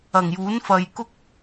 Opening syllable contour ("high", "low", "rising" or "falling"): low